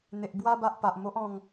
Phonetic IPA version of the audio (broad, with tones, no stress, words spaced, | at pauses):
n̪e˨ʔ bwa˧ba˨ʔ pa˨ʔmo˦ʔɔ̃˧ŋ